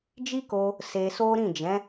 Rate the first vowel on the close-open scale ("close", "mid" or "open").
close